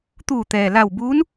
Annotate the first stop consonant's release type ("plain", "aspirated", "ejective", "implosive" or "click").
plain